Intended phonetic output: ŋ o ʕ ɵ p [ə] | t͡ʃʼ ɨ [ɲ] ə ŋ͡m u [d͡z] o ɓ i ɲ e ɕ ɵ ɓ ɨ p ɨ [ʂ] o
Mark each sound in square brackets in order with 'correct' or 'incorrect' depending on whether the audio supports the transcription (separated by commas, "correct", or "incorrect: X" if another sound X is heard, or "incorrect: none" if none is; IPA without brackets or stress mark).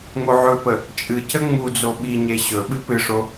correct, incorrect: c, correct, correct